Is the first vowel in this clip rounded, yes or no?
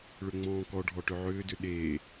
yes